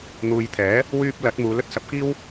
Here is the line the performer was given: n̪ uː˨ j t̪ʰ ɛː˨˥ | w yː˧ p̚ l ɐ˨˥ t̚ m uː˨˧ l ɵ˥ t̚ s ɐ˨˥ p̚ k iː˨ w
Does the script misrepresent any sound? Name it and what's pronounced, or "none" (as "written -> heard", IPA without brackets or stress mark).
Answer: iː˨ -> iː˥